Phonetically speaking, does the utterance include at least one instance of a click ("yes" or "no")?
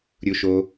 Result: no